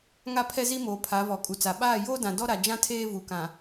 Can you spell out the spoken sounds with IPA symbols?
ŋa˦pʰɛ˦zi˦moː˨ pʰa˨˦vɔ˨kʼu˨t͡sa˨ ɓaː˦˨joː˦dã˨ dɔ˦ɾa˨d͡ʒã˦ tʰeː˦vu˨kã˨

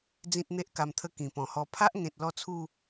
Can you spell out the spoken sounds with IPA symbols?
d͡zĩ˦t̚n̪e˦ʔka˧mt̪ʰə˦ kĩ˨˩pɔ̃˨˩hɔ˧ pʰa˦ʔŋẽ˨t̚ lɔ˥˧t͡sʰu˥˧

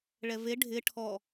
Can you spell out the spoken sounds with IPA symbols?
ɭɛve ɖʱɪ ʈʰɔ

